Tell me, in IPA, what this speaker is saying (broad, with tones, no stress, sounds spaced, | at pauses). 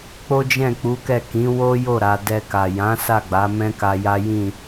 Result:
k͡p o˦ d͡ʒ ɛ̃˦˨ k͡p u˨˦ k ɛ˦˨ k ĩ˨˦ w o˦ j o˦˨ ɾ a˧ d ɛ˧ k a˨ j ã˨˦ s a˦˨ ɡ͡b a˨˦ m ɛ̃˦ k a˧ j a˦ j ĩ˦˨